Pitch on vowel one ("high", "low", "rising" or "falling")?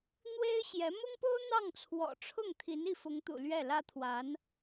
high